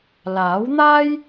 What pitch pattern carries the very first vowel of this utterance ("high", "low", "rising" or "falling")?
rising